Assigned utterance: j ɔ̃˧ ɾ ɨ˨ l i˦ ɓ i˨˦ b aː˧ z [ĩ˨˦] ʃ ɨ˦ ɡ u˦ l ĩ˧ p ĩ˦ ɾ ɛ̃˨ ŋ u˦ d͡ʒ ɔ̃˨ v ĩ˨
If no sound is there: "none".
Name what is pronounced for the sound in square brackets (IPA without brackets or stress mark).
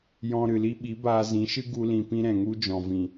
ĩ˨˦